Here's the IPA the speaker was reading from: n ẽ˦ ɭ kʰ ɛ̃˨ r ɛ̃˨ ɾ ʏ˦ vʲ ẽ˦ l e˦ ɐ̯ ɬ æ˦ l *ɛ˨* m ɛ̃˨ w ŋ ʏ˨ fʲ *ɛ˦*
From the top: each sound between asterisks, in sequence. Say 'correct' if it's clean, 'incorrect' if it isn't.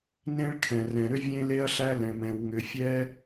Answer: incorrect, correct

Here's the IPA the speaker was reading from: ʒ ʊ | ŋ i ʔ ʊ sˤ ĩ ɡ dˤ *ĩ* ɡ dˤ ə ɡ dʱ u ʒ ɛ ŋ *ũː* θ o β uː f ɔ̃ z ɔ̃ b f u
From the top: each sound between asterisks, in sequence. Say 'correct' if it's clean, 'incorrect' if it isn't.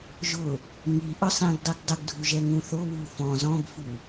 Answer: incorrect, incorrect

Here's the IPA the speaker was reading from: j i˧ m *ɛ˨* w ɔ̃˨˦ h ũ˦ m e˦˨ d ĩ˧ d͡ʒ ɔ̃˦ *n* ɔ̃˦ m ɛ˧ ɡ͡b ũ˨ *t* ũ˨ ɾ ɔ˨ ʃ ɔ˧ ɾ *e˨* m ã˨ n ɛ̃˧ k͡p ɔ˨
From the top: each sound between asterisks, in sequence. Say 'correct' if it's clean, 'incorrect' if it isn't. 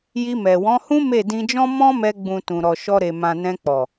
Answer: correct, incorrect, correct, correct

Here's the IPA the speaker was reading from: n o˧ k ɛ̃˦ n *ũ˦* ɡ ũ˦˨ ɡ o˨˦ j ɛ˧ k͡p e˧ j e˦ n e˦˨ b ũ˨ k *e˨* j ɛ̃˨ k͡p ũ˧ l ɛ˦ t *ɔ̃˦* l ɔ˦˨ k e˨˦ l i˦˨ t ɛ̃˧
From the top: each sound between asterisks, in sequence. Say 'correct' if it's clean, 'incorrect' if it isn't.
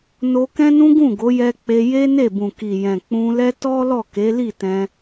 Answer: correct, incorrect, incorrect

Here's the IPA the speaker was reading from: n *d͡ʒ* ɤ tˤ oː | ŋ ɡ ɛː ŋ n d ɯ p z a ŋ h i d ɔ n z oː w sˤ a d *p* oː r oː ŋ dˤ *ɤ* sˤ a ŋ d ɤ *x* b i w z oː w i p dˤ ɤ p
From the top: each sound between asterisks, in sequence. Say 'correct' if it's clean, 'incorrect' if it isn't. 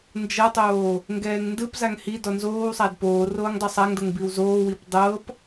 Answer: correct, correct, incorrect, incorrect

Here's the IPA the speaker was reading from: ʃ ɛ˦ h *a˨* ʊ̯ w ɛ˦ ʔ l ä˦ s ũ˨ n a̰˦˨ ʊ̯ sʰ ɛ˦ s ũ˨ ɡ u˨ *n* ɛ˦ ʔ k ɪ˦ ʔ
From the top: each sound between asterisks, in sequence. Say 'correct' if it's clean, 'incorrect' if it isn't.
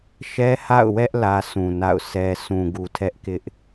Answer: incorrect, incorrect

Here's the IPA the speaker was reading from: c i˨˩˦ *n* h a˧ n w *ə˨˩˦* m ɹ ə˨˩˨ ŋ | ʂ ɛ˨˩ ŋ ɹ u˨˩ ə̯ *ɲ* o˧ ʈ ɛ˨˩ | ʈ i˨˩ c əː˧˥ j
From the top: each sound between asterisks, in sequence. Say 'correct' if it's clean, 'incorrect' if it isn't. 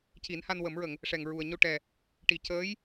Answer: correct, correct, correct

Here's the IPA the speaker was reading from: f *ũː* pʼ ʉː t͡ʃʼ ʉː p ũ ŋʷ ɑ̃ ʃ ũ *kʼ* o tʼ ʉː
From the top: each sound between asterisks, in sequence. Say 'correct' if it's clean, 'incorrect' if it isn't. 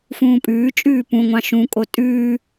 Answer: correct, correct

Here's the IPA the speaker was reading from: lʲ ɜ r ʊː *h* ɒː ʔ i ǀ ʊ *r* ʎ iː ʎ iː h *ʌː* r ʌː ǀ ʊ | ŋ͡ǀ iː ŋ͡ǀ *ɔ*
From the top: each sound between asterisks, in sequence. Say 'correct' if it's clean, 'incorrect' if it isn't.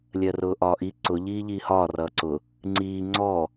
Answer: incorrect, incorrect, incorrect, correct

